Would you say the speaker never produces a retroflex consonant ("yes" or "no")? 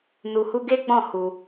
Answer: yes